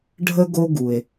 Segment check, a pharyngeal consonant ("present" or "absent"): absent